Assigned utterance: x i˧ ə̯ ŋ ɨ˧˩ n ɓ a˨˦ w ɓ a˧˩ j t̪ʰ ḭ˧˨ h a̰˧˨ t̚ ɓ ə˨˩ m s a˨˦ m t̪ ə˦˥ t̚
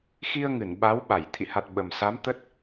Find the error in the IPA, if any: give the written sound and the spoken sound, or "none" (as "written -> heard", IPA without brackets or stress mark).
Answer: a̰˧˨ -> a˨˩